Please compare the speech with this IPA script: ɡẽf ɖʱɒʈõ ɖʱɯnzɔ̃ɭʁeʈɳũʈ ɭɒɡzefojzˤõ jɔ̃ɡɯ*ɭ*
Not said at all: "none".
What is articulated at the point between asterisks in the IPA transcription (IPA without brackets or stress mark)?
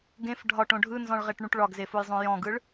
ɭ